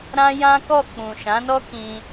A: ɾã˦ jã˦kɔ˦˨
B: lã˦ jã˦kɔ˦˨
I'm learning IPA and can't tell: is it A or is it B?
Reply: A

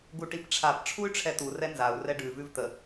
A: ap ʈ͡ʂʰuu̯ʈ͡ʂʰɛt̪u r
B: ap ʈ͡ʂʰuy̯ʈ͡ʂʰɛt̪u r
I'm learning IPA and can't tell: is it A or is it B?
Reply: B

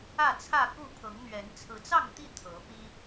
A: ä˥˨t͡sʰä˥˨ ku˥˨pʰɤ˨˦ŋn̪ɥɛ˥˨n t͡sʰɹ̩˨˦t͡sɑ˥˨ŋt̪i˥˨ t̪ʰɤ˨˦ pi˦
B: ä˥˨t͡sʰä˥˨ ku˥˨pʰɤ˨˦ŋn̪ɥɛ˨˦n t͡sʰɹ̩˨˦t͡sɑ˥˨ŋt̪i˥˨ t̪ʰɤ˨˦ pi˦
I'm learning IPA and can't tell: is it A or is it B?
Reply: B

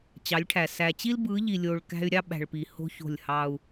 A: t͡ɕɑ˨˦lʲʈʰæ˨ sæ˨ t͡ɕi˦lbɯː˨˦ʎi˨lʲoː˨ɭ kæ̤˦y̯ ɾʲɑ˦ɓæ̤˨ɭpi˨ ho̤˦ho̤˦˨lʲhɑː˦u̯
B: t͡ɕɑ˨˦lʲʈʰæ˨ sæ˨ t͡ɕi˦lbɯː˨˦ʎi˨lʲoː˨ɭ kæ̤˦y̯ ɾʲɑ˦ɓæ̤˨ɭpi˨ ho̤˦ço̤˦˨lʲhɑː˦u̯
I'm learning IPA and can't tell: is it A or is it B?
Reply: B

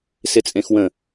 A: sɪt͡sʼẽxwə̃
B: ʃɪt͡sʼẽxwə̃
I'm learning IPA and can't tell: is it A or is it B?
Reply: A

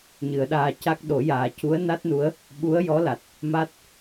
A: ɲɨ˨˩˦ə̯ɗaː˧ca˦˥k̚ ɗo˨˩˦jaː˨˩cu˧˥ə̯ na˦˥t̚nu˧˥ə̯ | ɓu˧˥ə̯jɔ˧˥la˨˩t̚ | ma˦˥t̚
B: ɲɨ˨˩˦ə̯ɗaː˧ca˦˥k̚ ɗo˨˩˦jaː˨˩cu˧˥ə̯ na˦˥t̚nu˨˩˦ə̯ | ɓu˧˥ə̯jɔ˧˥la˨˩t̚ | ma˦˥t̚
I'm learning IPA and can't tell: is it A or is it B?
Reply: A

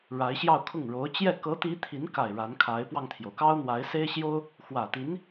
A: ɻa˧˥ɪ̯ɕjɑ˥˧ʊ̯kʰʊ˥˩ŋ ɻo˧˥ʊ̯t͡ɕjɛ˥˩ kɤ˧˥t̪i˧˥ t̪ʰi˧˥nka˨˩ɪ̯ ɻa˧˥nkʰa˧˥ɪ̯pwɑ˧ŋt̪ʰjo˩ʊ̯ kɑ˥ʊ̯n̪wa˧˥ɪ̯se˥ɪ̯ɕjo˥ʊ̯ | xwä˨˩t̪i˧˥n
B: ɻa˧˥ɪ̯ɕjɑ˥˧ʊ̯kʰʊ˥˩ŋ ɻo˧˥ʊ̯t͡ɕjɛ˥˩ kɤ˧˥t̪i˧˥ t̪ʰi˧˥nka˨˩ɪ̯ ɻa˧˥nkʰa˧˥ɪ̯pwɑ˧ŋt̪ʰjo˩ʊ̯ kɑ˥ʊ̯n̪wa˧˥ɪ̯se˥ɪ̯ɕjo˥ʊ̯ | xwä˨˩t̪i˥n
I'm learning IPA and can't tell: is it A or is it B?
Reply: A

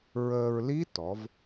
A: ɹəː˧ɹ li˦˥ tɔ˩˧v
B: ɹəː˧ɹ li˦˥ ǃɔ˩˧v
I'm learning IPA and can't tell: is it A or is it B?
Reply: A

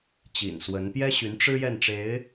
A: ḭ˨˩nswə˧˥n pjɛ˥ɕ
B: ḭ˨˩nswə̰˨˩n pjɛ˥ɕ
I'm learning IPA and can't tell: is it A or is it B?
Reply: A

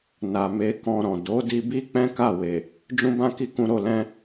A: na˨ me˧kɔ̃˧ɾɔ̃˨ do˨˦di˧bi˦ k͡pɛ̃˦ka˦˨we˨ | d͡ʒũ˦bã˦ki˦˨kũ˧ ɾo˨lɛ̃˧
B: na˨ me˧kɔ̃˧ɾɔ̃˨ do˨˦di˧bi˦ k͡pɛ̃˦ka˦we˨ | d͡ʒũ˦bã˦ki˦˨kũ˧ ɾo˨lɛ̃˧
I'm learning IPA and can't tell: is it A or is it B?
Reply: A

